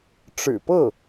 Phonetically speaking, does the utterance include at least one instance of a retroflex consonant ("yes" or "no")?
yes